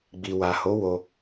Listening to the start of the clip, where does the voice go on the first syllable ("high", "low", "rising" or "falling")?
low